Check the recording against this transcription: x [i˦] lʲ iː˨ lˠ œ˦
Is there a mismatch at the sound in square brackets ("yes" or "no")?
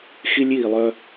no